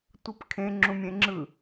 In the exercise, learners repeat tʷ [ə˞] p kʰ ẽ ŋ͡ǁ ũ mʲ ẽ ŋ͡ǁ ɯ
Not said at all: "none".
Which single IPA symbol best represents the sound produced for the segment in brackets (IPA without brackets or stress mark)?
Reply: ə